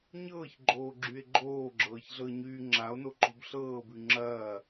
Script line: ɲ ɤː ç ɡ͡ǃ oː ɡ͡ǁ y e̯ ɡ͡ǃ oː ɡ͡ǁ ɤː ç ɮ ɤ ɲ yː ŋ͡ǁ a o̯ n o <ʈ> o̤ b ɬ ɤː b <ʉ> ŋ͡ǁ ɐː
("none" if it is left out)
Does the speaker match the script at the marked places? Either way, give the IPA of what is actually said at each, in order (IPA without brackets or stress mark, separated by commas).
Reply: ǃ, ʉ